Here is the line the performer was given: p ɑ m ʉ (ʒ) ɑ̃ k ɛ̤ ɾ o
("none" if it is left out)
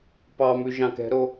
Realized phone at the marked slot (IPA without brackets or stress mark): ʒ